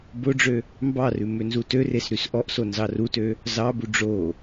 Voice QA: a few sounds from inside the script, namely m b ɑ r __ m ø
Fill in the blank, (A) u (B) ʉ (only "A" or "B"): B